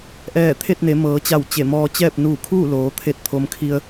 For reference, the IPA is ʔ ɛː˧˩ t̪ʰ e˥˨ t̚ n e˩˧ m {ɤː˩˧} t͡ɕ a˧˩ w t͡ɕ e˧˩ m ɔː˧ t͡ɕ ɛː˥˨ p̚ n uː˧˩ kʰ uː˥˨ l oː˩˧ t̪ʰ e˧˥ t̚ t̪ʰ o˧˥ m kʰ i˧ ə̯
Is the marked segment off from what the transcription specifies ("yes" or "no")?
no